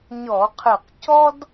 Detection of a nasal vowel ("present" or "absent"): absent